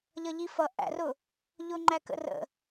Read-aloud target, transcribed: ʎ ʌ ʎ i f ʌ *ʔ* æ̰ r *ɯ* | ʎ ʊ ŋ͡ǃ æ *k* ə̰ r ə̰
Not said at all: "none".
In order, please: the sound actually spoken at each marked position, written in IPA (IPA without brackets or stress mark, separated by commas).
ʔ, ʊ, k